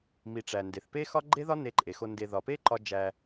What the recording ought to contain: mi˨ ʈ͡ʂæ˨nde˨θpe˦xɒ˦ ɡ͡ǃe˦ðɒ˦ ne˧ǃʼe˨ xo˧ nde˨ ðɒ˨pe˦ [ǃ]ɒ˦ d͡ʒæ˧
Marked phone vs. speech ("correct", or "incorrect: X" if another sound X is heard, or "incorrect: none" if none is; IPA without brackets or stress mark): correct